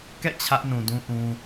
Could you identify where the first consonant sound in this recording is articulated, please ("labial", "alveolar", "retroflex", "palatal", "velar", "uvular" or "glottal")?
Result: velar